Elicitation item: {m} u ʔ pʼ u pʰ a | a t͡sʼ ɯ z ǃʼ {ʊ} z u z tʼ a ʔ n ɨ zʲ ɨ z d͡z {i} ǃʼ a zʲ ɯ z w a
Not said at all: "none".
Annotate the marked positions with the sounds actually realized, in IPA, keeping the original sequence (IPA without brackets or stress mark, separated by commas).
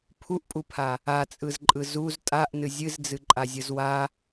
pʰ, ɯ, ɨ